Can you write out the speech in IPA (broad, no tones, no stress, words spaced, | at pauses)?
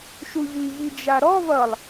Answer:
ʃuʎi ʎid͡ʒaɾɔ vʌlˠ